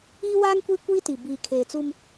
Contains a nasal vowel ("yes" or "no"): no